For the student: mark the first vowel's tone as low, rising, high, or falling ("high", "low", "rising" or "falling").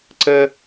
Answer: high